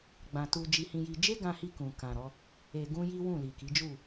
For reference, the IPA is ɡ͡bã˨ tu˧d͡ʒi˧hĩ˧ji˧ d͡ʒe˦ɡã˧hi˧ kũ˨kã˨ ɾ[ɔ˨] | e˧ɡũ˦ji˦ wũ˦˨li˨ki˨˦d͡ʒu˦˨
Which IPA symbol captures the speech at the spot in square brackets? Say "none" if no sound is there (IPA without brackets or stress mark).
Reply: ɔ˨˦